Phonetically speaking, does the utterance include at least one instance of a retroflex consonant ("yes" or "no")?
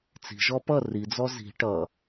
yes